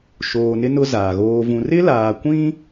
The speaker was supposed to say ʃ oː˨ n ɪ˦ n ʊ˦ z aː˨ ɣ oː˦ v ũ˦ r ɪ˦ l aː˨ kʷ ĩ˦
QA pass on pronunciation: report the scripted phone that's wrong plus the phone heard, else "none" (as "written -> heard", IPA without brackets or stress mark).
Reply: none